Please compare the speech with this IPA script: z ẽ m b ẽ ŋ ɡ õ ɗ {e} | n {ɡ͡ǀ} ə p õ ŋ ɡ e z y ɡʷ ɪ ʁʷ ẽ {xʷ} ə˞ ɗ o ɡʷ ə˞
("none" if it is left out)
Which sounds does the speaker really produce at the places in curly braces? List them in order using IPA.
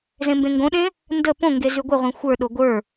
ẽ, d, xʷ

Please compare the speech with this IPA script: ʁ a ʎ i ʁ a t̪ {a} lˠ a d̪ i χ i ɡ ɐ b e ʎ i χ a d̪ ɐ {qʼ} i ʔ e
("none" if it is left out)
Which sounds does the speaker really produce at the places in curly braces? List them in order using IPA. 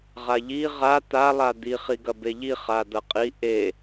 a, qʼ

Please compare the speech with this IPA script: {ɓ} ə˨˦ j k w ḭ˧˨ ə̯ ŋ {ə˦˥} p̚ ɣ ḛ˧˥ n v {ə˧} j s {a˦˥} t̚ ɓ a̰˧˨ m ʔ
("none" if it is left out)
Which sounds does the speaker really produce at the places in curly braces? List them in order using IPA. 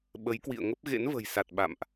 ɓ, ə˦˥, ə̤˨˩, a˨˩

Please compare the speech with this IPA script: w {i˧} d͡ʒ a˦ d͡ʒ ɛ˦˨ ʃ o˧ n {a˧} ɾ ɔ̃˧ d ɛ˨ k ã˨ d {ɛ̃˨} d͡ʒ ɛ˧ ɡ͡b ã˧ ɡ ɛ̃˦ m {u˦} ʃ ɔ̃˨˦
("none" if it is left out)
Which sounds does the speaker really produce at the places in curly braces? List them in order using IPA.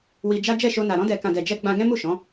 i˧, a˨, ɛ˨, u˦˨

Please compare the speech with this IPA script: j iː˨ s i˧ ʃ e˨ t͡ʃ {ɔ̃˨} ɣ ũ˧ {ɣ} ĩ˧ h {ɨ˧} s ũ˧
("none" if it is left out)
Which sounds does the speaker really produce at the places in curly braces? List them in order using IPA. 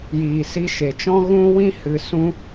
ɔ̃˦, w, ɨ˨

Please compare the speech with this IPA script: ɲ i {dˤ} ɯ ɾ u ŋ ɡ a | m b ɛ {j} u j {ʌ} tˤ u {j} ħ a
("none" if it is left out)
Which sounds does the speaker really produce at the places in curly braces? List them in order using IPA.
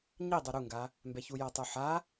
dˤ, ç, ʌ, none

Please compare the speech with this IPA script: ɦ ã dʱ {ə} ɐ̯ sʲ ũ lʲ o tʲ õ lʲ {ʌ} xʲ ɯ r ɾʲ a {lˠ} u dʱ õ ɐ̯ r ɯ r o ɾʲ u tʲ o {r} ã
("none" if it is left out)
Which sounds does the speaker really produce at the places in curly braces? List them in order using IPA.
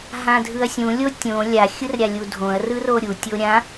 ɯ, a, lʲ, ɾʲ

